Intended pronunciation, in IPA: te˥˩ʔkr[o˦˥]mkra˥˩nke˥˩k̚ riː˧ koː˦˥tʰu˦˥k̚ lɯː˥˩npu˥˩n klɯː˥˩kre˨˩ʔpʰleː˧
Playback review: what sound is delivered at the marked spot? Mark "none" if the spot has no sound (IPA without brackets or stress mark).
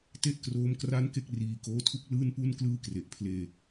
oː˦˥